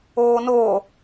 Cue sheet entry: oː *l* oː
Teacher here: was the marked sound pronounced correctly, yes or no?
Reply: no